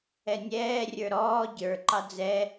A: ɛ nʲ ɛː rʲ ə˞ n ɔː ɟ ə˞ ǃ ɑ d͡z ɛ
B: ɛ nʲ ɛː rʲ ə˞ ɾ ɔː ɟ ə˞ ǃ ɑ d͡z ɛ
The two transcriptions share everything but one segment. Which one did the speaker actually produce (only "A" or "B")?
B